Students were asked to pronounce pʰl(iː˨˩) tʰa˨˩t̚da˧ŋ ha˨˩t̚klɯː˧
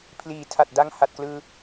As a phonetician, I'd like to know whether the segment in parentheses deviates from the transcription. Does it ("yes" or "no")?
no